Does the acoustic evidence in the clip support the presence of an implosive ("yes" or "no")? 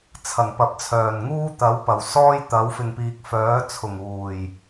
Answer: no